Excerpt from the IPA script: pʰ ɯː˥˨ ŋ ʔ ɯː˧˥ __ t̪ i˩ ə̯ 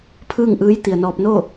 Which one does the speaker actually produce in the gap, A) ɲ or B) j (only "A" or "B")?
B